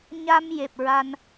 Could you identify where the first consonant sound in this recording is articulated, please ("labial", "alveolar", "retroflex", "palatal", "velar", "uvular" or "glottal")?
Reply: palatal